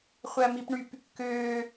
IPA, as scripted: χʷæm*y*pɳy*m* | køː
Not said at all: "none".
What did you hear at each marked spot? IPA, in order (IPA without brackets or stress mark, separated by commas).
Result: i, p